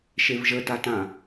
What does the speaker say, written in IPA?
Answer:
ʃevʒətatã

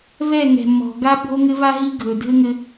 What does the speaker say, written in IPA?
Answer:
vɛ˦˨ŋɛ̤˨mːɔ̤˨ɡa˦ bʱo˦ŋɘ˦va˦ɦi˦ ɡʱɵ˨dʱɘ˦ŋɘ˦

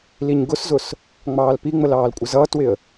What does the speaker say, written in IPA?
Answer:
liɲɡʊszʊs | ŋ͡mɑːlpiŋ͡məl ɑːlkʷʼɪzʌːtwɪə̯

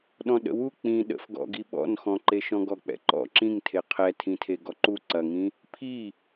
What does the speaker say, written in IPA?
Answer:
ɗɔ̃ɗə̰wu k͡pĩ ɗə̰fɡɔ̰ɡi ɓɔ̰nxɔ̃ǃe ʃɔ̃ɡɔk͡pɛ̰ǃɔ̰ ǁĩŋtʰe qʰɛtʰĩtʰe ɡɔǃu ǀɐŋĩ | pʰi

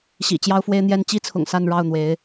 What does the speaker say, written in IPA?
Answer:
ɕḭ˨˩ t͡ɕjɑ˥ʊ̯fwe˥ɪ̯n̪jɛ˥n t͡ɕi˥t͡sʰʊ̰˨˩ŋ sa˥˧nɻɑ˥˩ʊ̯n̪we˧˥ɪ̯

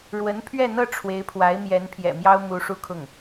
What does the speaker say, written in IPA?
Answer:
ɻwə˧˥npʰɥɛ˥˧n̪ɤ˥˩ ʈ͡ʂʰwe˧˥ɪ̯pʰwa˧˥ɪ̯ mjɛ˧˥npʰjɛ̰˨˩mjɑ˥ʊ̯ mu˧˥ʂu˥˧ kʰʊ˥˩ŋ

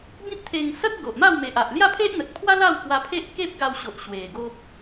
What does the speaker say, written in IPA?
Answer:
bĩ˦p̚t̪ʰe˧ŋ sə˦t̚ ɡo˨ʔma˥˧wme˨ʔa˨ʔ lja˥˧pʰe˦ʔn̪ə˨t̚pʰwa˦ la˥˧w kwa˧pʰe˦ʔ ke˦p̚ɡa˧wɕo˨ʔ ɕwe˨˩ɡo˦p̚

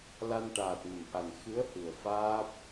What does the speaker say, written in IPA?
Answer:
la˧nʈaː˨˩t̚mə˨˩˨mʔa˨˩n xɨ˧˥ə̯ hɨ˨˩ə̯faː˦˥p̚

